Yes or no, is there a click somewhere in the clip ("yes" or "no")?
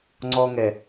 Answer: yes